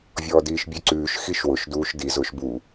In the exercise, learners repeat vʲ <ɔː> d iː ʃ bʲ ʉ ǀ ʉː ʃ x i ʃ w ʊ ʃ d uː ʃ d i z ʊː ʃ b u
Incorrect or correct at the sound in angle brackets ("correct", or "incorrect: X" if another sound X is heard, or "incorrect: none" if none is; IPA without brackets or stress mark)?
correct